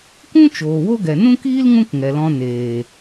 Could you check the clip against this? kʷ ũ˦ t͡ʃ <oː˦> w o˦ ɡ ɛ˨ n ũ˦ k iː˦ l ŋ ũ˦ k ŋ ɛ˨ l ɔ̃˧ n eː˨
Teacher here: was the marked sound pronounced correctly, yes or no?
no